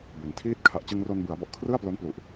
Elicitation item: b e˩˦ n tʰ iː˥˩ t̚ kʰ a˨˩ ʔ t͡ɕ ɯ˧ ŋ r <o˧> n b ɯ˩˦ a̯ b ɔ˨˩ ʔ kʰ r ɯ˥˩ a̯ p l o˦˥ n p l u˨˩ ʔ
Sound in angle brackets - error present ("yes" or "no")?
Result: no